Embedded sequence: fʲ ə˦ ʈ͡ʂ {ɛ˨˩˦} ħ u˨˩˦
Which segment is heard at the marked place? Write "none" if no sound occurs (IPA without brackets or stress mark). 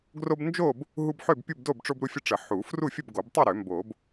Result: ə˨˩˦